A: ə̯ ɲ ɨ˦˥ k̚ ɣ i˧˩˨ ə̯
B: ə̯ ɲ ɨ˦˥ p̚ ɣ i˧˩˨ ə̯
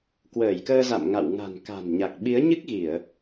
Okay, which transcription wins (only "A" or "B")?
A